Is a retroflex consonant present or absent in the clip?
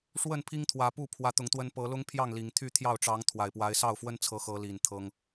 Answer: present